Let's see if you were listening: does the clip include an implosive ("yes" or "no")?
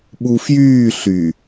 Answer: yes